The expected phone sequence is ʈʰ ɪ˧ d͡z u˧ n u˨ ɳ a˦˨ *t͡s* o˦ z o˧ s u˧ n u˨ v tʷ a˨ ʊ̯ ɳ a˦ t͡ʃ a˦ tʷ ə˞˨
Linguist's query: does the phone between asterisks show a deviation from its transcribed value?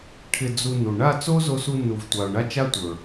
no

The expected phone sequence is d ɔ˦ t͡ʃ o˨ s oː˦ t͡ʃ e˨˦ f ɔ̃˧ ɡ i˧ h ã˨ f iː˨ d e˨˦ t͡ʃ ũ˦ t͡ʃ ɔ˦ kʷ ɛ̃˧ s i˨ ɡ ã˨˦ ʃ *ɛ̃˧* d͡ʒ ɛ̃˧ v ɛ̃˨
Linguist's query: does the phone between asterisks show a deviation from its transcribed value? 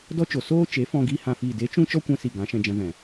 no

